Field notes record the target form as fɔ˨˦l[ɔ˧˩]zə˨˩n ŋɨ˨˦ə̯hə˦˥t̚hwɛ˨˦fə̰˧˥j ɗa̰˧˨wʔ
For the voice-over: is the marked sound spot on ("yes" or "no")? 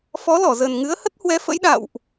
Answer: yes